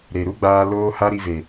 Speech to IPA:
ɾ e˨ ɾ u˦ ɡ͡b aː˧ l oː˦ h a˦ ɾ i˧ v e˨

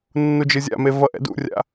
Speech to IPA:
nː u d͡ʒ ɯ zʲ a̰ m e v ʌ ʔ ɛ̰ d ṵ rʲ a̰

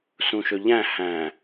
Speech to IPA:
s ũ ʃ ɵ ʎ æ̃ h æ̃

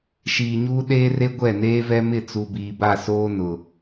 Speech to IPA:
ʃ iː˨ ɲ uː˦ ɗ eː˦ r e˦ ɡʷ ɛ˦˨ n eː˦ v ɛ˦ m ɪ˦˨ t͡s u˨ b iː˨ b a˦˨ s oː˦ n ʊ˨

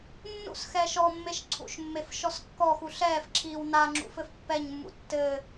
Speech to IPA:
nː ṵ s x ɛː ʃ ɔ mː e ʃ ǀʰ ṵ ʃ mː e f ʃ ɔ s kː ɔ x u ɬ ɛː f ǁʰ iː w n a ŋ͡ǁ ṵ f ɘ f pː ɛ ɲ mː ṵ tː ɘ

